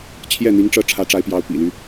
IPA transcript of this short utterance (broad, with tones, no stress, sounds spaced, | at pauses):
t͡ɕʰ j ɛ˥˩ n̪ i˧˥ ŋ ʈ͡ʂ ɤ˥˩ ʈ͡ʂʰ ä˧˥ ʈ͡ʂ a˧˥ ɪ̯ p j ɑ˧˥ ʊ̯ p ḭ˨˩ l y˦